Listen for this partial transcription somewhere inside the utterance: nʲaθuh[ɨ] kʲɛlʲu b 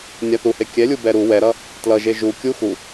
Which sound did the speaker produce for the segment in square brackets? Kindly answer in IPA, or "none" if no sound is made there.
e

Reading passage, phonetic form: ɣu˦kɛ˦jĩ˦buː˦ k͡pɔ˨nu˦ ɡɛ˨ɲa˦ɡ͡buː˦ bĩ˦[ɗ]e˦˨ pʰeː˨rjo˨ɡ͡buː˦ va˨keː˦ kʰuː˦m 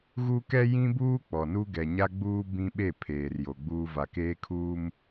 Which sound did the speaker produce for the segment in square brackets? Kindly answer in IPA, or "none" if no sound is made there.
ɓ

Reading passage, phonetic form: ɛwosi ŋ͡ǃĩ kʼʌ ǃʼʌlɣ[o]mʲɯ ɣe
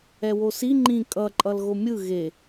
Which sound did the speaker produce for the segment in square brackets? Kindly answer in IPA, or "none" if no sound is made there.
o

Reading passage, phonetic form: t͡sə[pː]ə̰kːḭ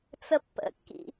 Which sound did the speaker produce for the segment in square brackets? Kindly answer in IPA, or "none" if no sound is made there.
pː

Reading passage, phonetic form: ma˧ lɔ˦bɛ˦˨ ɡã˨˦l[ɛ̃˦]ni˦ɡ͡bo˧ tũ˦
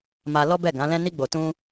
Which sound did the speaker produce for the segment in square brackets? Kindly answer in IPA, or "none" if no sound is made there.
ɛ̃˦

